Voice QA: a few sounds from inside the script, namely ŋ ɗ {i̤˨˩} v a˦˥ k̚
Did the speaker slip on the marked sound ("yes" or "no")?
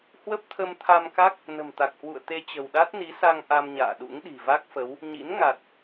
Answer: no